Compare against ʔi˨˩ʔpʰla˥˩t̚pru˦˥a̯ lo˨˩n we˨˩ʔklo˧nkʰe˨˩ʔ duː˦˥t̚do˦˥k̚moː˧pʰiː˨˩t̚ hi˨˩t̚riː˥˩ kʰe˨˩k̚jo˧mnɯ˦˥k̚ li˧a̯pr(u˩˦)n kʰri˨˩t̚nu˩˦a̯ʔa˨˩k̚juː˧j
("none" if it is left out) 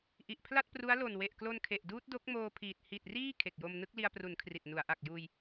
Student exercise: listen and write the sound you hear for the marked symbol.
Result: u˩˦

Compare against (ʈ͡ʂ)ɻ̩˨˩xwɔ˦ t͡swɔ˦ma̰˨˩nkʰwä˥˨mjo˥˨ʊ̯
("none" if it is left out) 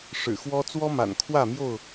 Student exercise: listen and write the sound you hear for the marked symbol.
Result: ʂ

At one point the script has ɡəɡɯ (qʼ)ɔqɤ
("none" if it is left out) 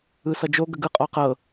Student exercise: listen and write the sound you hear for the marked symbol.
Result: qʼ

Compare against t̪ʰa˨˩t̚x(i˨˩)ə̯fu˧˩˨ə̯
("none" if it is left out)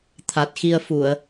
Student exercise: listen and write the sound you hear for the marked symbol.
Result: i˧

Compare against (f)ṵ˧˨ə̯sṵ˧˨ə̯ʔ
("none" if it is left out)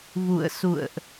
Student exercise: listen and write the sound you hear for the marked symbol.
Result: v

